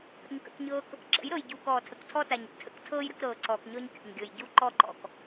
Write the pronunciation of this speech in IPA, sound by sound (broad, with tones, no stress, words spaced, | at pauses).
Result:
kə̰˨ɲkə̰˦˨kɲɤː˦k | ǁə̰˨˦jɾɤ˨jɟuː˨k ɔː˨tʰə˨ktʰɔ˦ta˨ɲ ə̰˨ tʰə̰˦ktʰɤː˦j ɾə˦kɾɤː˨ǀɔː˨kɲɔ˦ɲ kʲɔ̰˨ɲɡʲɤ˨j ɟu˦ǃɔ˦ǃɔ̰˨k